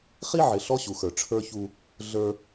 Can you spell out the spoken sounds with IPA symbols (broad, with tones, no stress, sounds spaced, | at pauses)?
χ i˦ ʕ ɪ˨ ɬ ɔ˦ ɕ u˨ x ə˞˨ ʈ͡ʂʰ ə˞˦ ç u˦ | ɮ ə˞˦